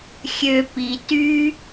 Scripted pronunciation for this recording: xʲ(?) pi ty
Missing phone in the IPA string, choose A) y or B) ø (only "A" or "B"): B